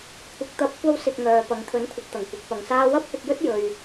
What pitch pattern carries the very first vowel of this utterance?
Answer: rising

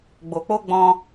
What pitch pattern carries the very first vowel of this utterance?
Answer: low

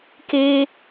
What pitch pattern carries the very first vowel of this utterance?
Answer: high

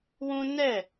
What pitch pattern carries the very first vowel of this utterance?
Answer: high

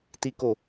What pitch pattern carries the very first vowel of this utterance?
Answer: high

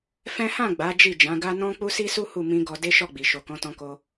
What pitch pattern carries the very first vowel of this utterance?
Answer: high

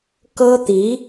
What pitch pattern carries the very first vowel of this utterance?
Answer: high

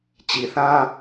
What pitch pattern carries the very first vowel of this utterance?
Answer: low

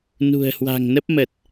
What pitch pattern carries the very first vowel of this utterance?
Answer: low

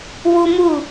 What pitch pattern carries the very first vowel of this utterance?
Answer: high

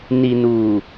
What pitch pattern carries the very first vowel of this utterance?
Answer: low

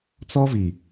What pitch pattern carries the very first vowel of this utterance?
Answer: high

